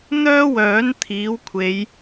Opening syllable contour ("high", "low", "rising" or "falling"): high